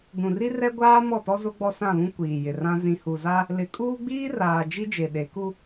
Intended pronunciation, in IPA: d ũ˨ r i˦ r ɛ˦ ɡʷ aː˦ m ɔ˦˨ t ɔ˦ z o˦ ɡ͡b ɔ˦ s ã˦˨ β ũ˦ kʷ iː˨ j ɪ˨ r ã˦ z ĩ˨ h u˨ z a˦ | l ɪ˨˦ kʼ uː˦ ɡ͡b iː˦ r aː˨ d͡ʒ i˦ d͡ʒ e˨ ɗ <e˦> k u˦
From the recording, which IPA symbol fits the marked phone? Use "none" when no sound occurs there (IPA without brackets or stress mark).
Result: e˨˦